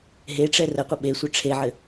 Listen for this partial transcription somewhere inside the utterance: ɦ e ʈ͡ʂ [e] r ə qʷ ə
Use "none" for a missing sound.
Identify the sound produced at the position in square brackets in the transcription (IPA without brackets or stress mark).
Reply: ɛ